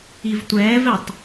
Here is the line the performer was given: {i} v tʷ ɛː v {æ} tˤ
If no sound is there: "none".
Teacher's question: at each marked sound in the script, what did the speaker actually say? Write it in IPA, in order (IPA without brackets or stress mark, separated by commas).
i, ɛ